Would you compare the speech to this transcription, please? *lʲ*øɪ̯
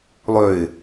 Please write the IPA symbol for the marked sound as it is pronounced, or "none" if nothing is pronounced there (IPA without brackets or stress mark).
lˠ